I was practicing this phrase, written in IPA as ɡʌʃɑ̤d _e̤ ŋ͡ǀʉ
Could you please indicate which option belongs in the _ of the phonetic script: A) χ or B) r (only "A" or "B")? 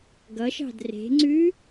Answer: B